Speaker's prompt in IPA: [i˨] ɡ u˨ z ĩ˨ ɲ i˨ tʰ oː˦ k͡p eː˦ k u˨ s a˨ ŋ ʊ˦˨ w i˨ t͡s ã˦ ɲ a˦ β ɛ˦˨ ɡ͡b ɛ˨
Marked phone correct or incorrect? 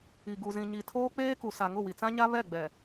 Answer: correct